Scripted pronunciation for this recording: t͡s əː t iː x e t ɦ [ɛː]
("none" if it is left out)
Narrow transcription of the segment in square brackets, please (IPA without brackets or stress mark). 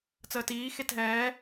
ɛː